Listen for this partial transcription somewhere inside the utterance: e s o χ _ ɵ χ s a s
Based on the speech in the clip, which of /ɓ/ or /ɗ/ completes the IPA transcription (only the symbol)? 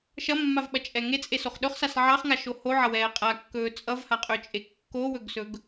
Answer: ɗ